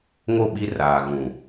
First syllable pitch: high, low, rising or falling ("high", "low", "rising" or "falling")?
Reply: falling